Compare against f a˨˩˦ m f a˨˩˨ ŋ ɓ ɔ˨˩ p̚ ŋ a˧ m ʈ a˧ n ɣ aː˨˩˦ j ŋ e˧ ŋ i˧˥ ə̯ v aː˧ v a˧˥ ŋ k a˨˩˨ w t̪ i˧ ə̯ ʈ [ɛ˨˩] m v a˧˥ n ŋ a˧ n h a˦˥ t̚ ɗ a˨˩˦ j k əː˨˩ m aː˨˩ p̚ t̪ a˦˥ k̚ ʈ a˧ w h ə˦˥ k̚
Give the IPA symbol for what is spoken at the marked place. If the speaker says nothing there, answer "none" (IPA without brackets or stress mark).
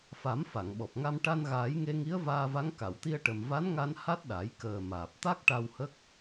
ə˨˩